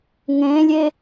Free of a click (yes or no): yes